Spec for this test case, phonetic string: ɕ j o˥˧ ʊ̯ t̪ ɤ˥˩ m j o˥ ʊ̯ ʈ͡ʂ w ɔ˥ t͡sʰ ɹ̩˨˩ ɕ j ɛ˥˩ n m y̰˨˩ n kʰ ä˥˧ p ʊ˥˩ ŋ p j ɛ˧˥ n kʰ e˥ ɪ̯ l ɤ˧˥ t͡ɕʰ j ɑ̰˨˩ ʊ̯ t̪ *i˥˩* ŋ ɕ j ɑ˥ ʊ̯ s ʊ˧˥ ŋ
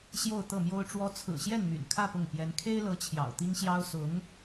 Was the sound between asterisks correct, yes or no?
no